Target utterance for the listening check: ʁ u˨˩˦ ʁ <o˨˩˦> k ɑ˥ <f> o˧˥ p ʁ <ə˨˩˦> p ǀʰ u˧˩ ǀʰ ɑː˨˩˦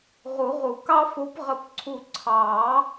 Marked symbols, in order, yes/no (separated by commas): no, yes, no